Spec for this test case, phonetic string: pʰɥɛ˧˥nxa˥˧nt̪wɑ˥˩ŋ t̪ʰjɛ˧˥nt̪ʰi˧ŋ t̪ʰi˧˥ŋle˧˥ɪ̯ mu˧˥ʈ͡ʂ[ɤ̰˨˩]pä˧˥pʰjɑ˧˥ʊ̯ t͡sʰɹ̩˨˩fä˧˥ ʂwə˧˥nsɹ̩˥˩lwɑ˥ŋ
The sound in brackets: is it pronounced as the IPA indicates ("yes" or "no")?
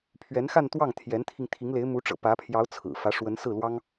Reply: yes